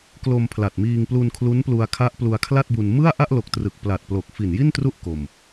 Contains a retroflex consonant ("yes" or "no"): no